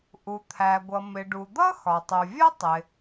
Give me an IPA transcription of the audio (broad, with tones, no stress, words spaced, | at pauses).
ʔu˩t̪ʰæ˩ɡʷʌ˩ mɪ˩ɖu˩d̪ʌ˥ xɒ˩tˤu˩vʲʌ˥ tˤɪ˩